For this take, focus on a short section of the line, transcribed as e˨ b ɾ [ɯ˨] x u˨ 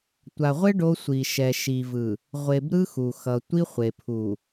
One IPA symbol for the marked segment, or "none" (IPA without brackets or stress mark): ɯ˦